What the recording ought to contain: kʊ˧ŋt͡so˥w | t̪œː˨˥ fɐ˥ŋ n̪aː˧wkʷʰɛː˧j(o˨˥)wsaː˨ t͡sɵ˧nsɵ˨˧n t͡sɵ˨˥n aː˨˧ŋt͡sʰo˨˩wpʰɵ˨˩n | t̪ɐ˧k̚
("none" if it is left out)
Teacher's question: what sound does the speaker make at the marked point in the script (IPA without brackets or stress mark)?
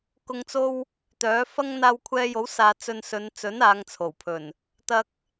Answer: o˨˥